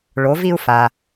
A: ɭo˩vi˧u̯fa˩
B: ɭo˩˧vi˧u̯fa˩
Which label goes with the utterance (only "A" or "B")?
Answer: B